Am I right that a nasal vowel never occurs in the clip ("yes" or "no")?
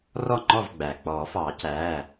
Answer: yes